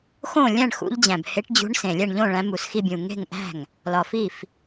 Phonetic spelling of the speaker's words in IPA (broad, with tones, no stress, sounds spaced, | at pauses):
x õ˥˩ lʲ æ̃˥˩ ɳ x ṵ˨˦ ʎ d͡ʑ æ̃˨˩ b h e˨˦ ʈ d͡ʑ ṳ˨˦ ɳ s ẽ˨˩ lʲ æ˥˩ ɳ ʎ õ˥˩ ɭ æ̃˨˦ m u˨˩ s x i˥˩ bʲ ũ˨˩ ŋ e̤˥˩ ŋ ʔ æ̤˥˩ ŋ | l ɒ˨˩ f i˥˩ f